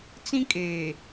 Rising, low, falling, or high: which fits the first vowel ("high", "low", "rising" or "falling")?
high